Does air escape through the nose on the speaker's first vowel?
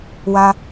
no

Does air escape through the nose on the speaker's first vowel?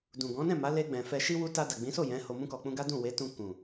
yes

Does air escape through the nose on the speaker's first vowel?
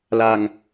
no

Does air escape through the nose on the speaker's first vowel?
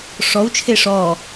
no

